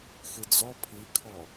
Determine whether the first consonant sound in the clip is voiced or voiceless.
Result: voiceless